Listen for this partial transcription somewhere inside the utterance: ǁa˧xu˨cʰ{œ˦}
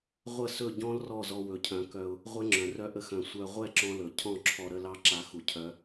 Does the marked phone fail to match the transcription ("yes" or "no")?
yes